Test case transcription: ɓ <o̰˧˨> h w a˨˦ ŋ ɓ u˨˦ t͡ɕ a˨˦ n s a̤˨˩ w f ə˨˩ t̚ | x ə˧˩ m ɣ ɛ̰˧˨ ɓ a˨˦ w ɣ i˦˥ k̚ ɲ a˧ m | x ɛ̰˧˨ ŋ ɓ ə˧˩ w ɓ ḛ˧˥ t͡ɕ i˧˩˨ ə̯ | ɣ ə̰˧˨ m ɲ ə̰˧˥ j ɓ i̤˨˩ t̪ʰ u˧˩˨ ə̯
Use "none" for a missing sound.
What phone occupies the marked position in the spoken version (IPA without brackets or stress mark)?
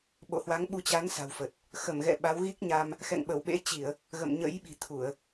o̰˧˨